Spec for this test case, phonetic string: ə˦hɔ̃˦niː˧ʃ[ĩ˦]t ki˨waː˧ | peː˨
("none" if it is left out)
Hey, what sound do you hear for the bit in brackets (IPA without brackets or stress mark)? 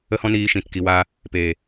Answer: ĩ˨